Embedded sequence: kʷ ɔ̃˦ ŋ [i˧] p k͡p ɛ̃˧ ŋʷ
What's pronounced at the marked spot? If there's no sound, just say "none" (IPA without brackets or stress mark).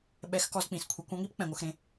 i˦